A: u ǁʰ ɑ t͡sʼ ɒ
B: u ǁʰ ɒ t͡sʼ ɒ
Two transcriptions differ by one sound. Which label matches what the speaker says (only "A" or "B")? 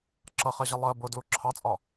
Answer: A